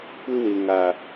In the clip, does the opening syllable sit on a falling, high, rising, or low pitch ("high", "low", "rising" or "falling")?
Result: high